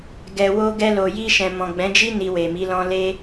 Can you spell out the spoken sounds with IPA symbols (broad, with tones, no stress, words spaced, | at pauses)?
ɡɛ˨wo˧ɡɛ˧ lo˨ji˧ʃɛ̃˨ mɔ̃˨ɡ͡bɛ̃˨˦d͡ʒi˦ ni˧we˨mi˨˦lɔ̃˦ le˦